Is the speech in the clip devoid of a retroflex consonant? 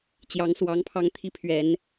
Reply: yes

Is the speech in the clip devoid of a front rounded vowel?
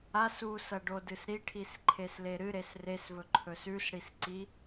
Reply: yes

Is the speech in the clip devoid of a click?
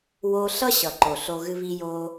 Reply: no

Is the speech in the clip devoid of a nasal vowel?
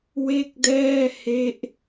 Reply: yes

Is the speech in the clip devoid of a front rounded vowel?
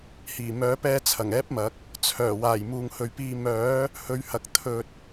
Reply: no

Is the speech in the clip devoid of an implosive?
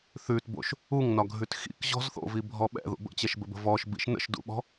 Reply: no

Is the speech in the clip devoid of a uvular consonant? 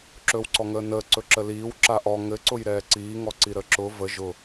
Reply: yes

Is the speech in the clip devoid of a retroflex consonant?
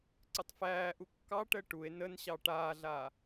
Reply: no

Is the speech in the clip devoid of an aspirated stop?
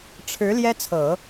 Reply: no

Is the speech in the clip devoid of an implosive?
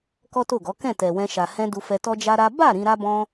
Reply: yes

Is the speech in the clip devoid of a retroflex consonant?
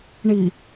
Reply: no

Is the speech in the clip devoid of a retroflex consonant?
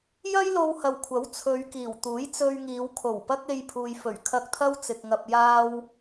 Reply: yes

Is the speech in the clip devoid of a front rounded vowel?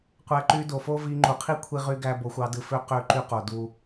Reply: no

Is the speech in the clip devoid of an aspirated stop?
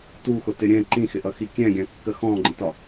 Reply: yes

